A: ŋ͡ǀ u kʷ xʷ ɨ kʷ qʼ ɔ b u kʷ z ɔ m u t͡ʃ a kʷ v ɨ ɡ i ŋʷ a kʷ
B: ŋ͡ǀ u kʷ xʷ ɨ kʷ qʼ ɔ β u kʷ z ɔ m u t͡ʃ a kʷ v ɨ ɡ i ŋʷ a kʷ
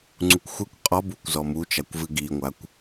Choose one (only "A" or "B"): A